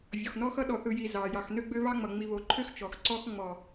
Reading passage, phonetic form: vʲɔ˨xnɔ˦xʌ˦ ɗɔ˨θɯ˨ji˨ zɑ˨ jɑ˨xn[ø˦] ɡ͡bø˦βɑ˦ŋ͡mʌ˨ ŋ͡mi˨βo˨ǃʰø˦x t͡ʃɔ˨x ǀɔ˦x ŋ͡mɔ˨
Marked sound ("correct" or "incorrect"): correct